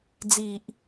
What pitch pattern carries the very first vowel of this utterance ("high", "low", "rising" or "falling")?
low